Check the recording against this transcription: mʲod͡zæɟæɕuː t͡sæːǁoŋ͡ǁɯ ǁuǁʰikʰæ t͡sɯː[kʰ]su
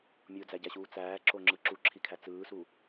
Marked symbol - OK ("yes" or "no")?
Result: no